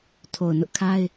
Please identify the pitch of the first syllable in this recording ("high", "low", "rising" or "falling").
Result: low